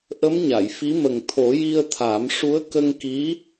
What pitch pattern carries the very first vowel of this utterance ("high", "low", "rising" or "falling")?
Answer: rising